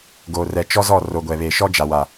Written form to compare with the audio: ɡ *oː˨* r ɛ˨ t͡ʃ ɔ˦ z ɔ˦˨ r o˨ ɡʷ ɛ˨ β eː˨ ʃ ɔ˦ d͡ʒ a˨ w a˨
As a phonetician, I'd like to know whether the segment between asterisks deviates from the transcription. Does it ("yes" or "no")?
no